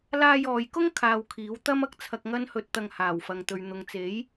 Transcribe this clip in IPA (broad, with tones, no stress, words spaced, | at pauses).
laː˧jɔː˨jkʊ˥ŋ kʰaː˧wkʰiː˨˥w t̪ɐ˥m ɐ˧k̚t͡sʰɐ˧k̚ ŋɐ˥nhɵ˧t̚ t̪ɐ˧ŋhaː˨˩wfɐ˨ŋt̪ɵ˨ɥ n̪ʊ˨ŋt͡se˨˥j